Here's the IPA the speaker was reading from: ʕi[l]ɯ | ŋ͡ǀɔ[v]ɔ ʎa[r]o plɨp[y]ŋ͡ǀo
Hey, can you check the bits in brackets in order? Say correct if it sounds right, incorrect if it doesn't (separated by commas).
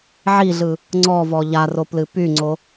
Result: incorrect, correct, correct, correct